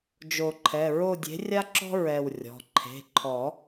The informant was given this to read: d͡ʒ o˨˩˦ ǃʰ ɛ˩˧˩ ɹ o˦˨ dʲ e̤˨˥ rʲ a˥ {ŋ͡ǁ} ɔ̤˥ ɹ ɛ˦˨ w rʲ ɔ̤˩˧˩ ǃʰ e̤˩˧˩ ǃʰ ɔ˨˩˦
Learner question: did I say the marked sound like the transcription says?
no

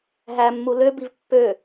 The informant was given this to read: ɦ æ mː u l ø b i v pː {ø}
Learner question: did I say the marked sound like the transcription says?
yes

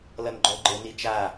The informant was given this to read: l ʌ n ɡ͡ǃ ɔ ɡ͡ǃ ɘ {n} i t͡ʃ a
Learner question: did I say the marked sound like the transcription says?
yes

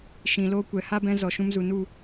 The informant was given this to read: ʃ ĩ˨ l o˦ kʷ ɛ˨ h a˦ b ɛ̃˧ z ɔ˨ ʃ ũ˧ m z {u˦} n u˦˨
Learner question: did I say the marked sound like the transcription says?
no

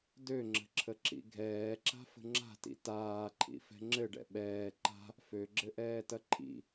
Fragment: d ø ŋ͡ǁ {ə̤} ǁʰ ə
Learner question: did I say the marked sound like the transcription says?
yes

